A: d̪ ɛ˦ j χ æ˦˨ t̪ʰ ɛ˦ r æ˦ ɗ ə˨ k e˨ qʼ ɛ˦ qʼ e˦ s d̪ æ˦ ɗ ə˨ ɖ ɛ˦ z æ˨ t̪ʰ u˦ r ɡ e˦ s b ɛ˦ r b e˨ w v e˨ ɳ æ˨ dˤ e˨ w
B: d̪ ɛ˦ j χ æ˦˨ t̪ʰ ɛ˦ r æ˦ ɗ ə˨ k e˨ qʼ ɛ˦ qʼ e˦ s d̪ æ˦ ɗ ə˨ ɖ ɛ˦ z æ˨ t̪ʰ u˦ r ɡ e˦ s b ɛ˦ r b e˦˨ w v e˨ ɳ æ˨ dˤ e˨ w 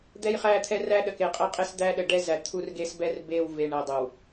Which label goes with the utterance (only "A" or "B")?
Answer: B